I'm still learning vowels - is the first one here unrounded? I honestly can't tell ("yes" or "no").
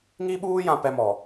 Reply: yes